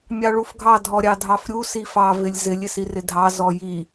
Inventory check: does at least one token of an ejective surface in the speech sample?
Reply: no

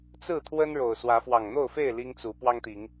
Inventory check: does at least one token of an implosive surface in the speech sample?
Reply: no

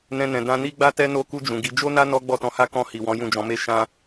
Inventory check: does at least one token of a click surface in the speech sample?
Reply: no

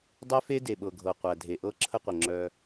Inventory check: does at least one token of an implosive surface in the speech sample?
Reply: yes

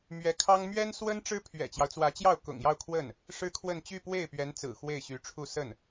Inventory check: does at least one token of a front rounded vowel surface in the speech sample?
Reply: yes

